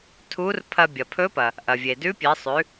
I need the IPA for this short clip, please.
tʰ u˧˥ r pʰ ɐ˧ bʲ ɐ˩ pʰ ɵ˧˥ p ɐ˩ | ʔ ɐ˩ vʲ e˩ d ʉ˧˥ pʲ e˩˧ sˤ ʉ˩˧

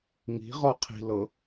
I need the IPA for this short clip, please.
ŋ i̤ ʁ ɔ qʰ i̤ l ɤ

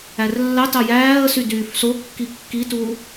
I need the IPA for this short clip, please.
æ r lː ɑ t ɑ j æː ə̯ s y d yː f s o kː i kː i t u

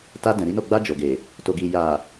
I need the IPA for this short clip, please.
t a˧ d ɛ̃˨ ɾ i˨˦ n o˦˨ ɡ͡b a˧ d͡ʒ o˨ ɡ e˨ | t o˨ ɡ i˨ j a˨

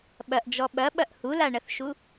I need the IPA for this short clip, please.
ɓ ɐ ʔ d͡ʒ ɔ ɓ ɐ ɓ ɐ ʔ h u l a ɳ ɐ θ ʃ u

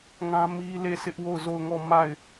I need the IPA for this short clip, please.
ŋ ã˦ m i˦ l e˦˨ sʰ ɪ˦ ʔ w o˦˨ ʊ̯ z o˦˨ ʊ̯ ŋ ɔ˦˨ m a˦˨ ɪ̯

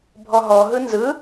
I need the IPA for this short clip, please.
bʱ ɔ ɦ ɔ ɦ ɯ n z ɯ

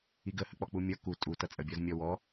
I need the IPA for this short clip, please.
i ɡ ə h ə k͡p ɔ k͡p u mʲ ʌ k u tʼ u t ʌ t͡sʼ ə bʲ ɔ z mʲ ɔ w ɔ

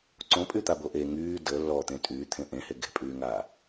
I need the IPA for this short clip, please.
ǀ õ pʼ y t̪ a b o ʔ e ŋ yː d ə lː ɔ t̪ ẽ tʼ yː t̪ʰ ẽ ʔ ẽ h e ɡ e̤ pʼ yː ŋ aː

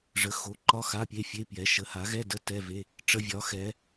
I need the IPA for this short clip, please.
ʐ ə˩˥ x o˩˥ ǃ ɒ˧˥˧ x a˧˥˧ pʲ e˧˥˧ fʲ e˧˥˧ p j ɛ˩˥ ʃ ə˩˥ h a˩˥ ɣ ɛ˧˥˧ d ə˧˥˧ t ɛ˧˥˧ v e˧˥˧ | ʈ͡ʂ ə˧˥˧ vʲ ɒ˩˥ x ɛ˩˥

